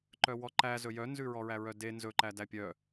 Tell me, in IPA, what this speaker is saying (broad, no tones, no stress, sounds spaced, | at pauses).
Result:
ǃ œ w ɔ ǃ æ z ɵ j œ n z ʉ ɹ ɔ ɹ æ ɹ œ d e n z ɵ ǃ æ d æ pʲ œ